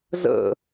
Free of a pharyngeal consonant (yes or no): yes